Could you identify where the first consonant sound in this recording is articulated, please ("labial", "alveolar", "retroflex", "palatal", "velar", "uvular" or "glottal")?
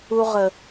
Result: uvular